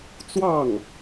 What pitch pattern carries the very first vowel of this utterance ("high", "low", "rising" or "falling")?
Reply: falling